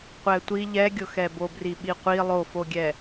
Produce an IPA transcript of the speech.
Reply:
qʷ ɛ tʷ i ʎ ɛ ɡʲ ʊ x ɛ b o b r i ɓ i qʷ i lˠ o f o ɡʲ ɛ

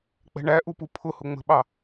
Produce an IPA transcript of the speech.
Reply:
k͡p ɛ̤ ɳ æ ʔ u p u pʰ ʊ h ʊ ŋ͡m ə̤ ɓ ɑ

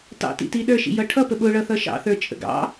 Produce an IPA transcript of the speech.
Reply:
t ɑ̰ t ḭ t i ɗ ə˞ ʃ ḭ j ʌ ʈʰ ʌ p ə ɓ ʊ ɭ ʌ θ ʌ ʃ ɑ̰ θ ə˞ t͡ʃʼ ə̰ ɡ ɑ̰

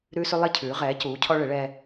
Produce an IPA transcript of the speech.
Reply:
ɾ ʉː˧ s ʉ˧ lˠ e˧ cʰ ʉː˩˧ ʁ ɛː˩˧ c uː˩˧ cʰ ɔ˧ ɭ e˩˧ ɭ ɛː˧

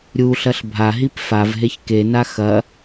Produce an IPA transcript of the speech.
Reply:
ɾʲ u ɬ ɐ ɬ bʱ a ɦ i p f a v ɦ e ç k e n a x ɐ

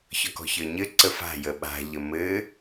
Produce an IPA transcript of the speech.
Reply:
ç ɒ k ɔ̤ ç ə˞ ɲ ɘ ǀ ə f a̤ j ə ɓ a̤ ʎ ə m ɘ

